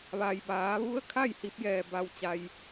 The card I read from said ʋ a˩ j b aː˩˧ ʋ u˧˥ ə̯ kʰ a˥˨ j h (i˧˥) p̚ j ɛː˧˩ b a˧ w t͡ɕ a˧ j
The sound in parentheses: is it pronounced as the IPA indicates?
yes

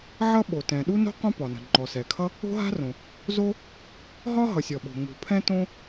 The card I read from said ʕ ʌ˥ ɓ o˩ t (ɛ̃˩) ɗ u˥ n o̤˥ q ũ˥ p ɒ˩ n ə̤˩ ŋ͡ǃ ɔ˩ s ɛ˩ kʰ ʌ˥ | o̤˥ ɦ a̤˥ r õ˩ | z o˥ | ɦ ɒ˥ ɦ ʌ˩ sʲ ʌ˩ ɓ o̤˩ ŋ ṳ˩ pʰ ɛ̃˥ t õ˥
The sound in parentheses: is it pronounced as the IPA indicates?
yes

